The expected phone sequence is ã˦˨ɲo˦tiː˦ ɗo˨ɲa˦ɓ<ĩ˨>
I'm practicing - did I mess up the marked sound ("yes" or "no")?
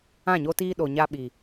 yes